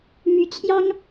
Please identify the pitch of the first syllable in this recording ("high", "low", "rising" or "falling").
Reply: rising